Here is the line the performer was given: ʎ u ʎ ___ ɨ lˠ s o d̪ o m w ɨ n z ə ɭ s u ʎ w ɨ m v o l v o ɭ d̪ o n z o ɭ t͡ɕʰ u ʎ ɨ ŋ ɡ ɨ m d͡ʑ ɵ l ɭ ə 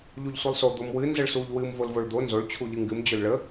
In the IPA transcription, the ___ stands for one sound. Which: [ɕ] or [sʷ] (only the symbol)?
sʷ